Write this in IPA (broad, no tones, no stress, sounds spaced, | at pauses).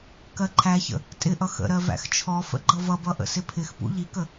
k ɜ ǃʰ æ ç ə̰ | tʼ ɪ ʔ ʌ x ə̰ ɾ ɜ v æ̰ x t͡ʃʰ ɔ f ə̰ ɡ͡ǃ ʌ v ʌ b ʌ ʔ ə̰ s ɪ pʰ ɪ x p ṵ ʎ i k ə